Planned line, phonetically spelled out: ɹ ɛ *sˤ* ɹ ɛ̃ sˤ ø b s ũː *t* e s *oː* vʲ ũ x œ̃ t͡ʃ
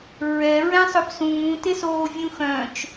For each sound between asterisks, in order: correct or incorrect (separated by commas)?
incorrect, correct, correct